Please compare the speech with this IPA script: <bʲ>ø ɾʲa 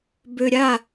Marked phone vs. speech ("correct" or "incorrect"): incorrect